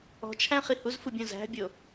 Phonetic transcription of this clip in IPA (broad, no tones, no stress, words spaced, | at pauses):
ɔ̤t͡ʃʰæ̃χi huzfubʲõ zæ̤bʲo